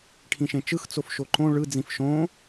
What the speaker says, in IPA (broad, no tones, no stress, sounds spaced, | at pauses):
ʈʰ ĩ ʃ ẽ t͡ʃ ɯ x t͡s o f ʃ o ǃ õ ɭ ɯ d͡z ĩ f ʃ õ